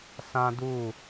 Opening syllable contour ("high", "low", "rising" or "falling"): high